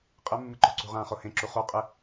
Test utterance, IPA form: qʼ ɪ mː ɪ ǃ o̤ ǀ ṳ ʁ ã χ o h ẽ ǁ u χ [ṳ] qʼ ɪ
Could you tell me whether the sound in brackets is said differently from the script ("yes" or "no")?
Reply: yes